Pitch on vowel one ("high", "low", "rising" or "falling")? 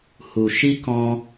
low